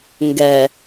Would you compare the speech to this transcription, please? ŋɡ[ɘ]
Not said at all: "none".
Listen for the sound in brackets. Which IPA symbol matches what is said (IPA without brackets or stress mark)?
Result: ɛ